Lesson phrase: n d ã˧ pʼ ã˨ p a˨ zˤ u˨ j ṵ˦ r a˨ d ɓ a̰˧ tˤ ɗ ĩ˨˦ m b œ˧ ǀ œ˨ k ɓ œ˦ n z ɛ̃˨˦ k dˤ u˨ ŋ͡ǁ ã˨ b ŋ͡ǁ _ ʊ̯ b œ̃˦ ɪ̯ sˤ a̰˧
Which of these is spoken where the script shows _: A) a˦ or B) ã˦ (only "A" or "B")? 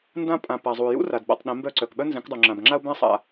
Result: A